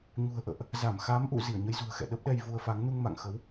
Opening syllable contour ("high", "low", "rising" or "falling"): low